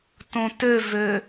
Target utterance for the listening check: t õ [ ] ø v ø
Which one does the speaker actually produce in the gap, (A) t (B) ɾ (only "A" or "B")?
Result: A